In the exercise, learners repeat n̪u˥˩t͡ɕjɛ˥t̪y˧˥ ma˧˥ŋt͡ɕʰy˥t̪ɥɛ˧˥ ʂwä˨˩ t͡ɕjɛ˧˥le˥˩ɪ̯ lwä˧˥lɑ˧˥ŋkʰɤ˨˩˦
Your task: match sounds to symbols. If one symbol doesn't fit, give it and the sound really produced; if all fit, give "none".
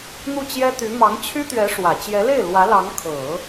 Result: a˧˥ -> ɑ˧˥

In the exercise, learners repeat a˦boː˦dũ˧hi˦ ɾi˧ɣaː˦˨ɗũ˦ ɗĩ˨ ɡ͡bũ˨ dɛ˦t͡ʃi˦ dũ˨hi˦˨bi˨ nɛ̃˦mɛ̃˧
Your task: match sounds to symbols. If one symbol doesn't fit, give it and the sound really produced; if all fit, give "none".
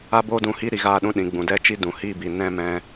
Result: none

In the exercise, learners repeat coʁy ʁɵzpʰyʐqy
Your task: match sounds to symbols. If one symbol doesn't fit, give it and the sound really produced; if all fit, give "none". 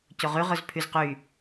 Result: ʐ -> z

